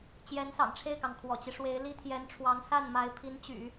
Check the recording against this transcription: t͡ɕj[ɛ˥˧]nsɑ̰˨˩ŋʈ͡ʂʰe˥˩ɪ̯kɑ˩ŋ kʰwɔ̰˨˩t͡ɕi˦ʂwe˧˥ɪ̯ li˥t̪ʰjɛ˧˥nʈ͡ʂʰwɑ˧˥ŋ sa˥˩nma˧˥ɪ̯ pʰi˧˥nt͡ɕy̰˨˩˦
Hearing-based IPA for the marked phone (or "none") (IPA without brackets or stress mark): ɛ˧˥